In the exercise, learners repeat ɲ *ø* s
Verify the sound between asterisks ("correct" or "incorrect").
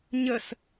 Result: incorrect